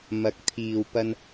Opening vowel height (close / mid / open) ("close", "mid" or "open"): open